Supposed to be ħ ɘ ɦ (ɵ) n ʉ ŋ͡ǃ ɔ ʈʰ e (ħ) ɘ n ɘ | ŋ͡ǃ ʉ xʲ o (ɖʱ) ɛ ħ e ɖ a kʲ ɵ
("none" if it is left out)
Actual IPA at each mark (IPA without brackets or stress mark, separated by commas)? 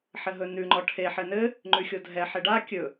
ɵ, ħ, dʱ